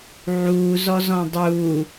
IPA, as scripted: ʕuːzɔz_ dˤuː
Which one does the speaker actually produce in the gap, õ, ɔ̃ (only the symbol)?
ɔ̃